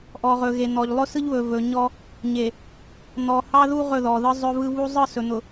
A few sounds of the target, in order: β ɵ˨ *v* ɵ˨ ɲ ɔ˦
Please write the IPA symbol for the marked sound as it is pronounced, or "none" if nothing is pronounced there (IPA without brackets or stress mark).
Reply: v